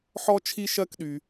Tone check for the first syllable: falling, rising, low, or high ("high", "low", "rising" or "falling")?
high